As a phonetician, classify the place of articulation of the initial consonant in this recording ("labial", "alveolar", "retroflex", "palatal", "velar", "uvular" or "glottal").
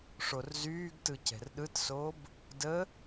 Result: retroflex